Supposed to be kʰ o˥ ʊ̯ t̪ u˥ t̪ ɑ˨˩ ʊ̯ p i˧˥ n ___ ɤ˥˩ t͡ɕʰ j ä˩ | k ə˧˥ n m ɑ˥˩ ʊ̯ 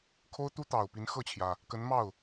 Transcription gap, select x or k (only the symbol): x